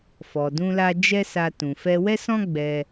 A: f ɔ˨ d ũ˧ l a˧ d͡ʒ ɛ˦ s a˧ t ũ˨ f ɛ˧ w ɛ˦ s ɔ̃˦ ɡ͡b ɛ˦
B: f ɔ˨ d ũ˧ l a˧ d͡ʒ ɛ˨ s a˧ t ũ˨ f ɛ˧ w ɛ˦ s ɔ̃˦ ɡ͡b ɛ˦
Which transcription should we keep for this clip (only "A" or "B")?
A